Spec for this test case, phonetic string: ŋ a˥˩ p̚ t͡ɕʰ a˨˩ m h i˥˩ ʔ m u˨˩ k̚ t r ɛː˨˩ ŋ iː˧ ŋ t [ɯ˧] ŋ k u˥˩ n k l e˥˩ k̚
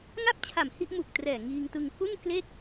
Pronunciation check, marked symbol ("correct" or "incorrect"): correct